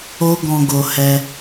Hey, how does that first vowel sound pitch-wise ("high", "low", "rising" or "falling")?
high